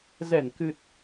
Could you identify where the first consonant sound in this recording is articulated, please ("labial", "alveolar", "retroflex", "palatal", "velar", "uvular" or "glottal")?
alveolar